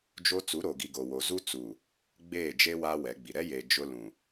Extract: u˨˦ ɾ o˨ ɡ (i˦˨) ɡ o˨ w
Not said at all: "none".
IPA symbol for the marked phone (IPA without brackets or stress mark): i˨